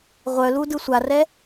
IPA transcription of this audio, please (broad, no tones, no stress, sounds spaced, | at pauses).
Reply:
ʁʷ œ l u d ɯ sʷ a r ɛ